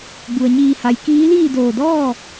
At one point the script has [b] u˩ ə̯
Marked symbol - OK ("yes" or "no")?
yes